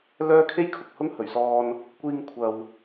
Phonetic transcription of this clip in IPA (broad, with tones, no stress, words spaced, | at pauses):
lœː˥kʰe˥jkʰʊ˨k̚hʊ˥ŋ hɵ˨˩ɥsɔː˧n | kʷiː˧ŋkʷʰɐ˨w